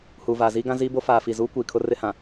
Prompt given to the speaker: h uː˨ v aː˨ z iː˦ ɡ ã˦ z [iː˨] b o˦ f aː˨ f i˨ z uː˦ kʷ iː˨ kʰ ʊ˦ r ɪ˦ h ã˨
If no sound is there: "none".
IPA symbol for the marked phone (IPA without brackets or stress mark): iː˦